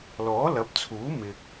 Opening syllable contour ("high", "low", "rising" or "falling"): rising